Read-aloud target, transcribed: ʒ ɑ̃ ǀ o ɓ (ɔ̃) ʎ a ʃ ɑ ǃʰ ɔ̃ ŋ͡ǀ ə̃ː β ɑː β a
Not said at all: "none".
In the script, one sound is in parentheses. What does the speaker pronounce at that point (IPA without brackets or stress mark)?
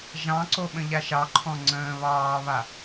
ə̃